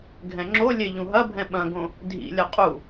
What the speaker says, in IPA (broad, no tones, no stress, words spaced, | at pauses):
ɡʱɛ̃ŋ͡ǁolʲe ʎũɦɐbʱɛ̃ ɓɐ̃ɡõ | dʱḭlʲɐ qʼu